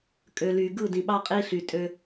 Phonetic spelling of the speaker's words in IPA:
kʼ ø˨ l y˨ ɡ ɯ˦˨ d ĩ˨ ɓ ɑ˦ qʼ i˦ ɬ y˨ tʼ ø˦

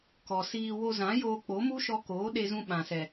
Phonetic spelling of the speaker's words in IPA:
k ɔ˨ s iː˧ w o˧ z ã˨˦ j oː˧ k͡p o˨˦ m u˦ ʃ ɔ˧ k oː˨˦ ɗ e˧ z ũ˧ ɓ ã˨ s ɛ˨

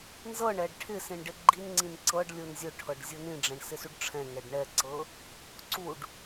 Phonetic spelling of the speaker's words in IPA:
n z ɤ ɳ ɛ ɖ ʈʰ ɪ s ĩ ɳ ɖ ɪ ɡ͡ǃ i n ŋ͡ǀ ĩ n ǀ ɤ ɖ lʲ ʊ n zʲ ʊ ʈʰ ɤ ɖ zʲ ɤ n ĩ ɖ͡ʐ ɛ̃ ɳ s ɪ s u ɖ ʈ͡ʂʰ ɛ̃ ŋ ɛ ɖ ɳ ɛ ǀ ɤ | ǀ u ɖ

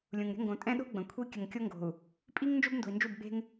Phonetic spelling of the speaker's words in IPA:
lʲ ũ˨ ŋ ɾʲ ə̤˦ ŋ ɡ õ˨ tʼ ɛ̃˦ ɗ o̤˦ ɡ͡b ə̃˨ kʷʰ i˦ kʲ ə˨ ŋ kʲ o˦ ŋ ɡ o̤˨ u̯ | pʼ i˦ ŋ n d͡ʒ o˦ b n d o̤˨ i̯ n d͡ʒ u˦˨ b ɡ͡b e̤˦ ŋ

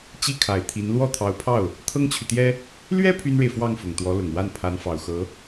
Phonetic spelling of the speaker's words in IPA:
t͡ɕ i˥ kʰ a˨˩ ɪ̯ t̪ʰ i˧˥ n l w ɔ˥˩ t̪ʰ ɑ˧˥ ʊ̯ pʰ ɑ˥˩ ʊ̯ | t̪ʰ ɤ˥ ŋ t͡ɕʰ y˨ t̪ j ɛ˥ | l ɥ ɛ˥ pʰ y˥ n ɻ e˨ ɪ̯ f w ɑ˥˩ ŋ f ʊ˨˩ ŋ t̪ w ɔ˧˥ l ʊ˨˩ ŋ w a˥˩ n pʰ a˧˥ n f ɑ˨˩ ʊ̯ x ɤ˧˥

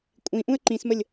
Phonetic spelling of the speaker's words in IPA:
kʷʼ ĩ ʔ ũ ə̯ ǃ ĩ s m ə lʲ

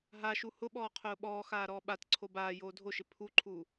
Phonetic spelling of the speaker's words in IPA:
ɦ a ʃ u h ʊ ɓ ɔː qʰ ʊː ɓ ɔː x aː ɾ ɔː ɓ a t ǀʰ o b aː j oː dʱ o ʃ ɪ pʰ u ǃʰ u

